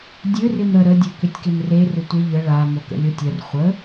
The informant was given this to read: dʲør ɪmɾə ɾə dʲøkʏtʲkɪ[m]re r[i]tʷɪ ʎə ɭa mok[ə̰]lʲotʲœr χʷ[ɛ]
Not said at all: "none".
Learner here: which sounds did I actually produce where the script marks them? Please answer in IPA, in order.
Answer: m, ɪ, ə̰, ə

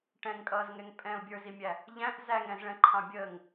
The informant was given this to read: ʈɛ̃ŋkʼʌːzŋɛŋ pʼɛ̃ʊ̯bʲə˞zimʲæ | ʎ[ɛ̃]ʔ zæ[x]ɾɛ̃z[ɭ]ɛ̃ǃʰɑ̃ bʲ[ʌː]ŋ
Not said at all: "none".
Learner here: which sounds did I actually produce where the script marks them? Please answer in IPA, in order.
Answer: æ̃, ŋ, ɭ, əː

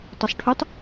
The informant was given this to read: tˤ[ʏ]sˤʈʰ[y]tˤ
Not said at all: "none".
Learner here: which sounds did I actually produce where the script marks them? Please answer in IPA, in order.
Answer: u, y

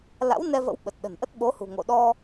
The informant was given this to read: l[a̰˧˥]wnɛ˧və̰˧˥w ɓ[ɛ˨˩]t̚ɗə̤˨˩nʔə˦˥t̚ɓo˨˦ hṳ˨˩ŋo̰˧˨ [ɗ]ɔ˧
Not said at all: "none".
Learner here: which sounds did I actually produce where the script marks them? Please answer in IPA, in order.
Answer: a̰˧˥, ə˨˩, ɗ

